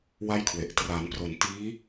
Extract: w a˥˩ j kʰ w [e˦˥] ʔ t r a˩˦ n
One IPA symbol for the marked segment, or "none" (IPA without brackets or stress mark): e˨˩